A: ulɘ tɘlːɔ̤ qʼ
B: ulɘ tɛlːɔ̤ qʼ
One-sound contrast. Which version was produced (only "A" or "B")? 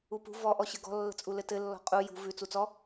A